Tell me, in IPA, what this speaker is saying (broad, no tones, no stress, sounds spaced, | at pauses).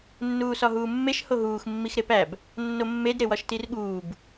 nː uː s ɒ ɦ uː mː e ʃ h o ɦ uː x mː i x ɾ e p æ b | nː o mː e d ɾ e w ɒ ʃ t i r ɠ uː b